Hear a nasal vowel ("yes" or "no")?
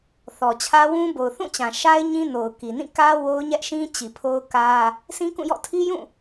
yes